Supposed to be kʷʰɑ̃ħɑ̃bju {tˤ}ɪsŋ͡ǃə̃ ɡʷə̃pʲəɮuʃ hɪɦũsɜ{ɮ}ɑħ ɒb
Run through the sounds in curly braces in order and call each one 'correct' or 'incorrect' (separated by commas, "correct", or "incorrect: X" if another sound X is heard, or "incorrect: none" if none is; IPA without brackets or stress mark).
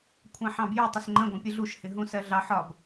correct, correct